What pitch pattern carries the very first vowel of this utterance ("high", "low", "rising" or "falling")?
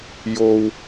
low